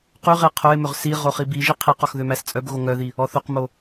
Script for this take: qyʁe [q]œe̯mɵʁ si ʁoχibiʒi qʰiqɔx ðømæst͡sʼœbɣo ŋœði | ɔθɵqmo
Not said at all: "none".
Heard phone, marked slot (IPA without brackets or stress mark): qʰ